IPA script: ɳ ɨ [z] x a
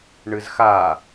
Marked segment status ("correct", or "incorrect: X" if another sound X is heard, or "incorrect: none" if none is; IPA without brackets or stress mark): correct